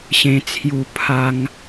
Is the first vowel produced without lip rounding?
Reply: yes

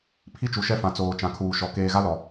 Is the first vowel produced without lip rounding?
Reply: yes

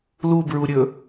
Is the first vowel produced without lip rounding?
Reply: no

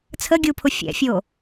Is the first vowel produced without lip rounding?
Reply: yes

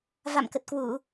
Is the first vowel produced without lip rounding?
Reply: yes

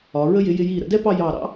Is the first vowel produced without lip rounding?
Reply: no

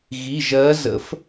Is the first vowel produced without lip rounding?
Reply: yes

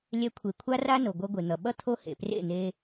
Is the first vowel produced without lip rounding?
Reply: yes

